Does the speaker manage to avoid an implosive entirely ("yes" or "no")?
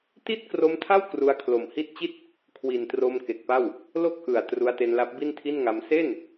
yes